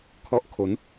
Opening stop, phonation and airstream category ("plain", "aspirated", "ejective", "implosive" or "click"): aspirated